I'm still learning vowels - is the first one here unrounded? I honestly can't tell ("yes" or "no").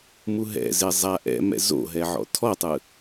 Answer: no